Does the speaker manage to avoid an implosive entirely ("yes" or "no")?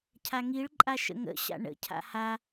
yes